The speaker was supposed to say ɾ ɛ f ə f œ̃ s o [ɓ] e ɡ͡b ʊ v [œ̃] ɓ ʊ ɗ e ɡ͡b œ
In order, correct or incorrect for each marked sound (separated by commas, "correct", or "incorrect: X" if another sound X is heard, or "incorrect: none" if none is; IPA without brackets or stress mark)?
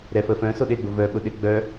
incorrect: ɗ, incorrect: œ